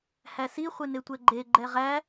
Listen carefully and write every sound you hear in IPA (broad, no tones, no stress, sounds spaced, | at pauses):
h æ s i χʷ e n e tʷ ɛ ɡ͡ǃ e ɡ͡ǃ ɛ ʁ æ